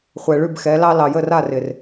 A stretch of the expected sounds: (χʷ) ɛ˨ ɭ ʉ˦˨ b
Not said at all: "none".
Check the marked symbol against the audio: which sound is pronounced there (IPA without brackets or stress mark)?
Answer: χʷ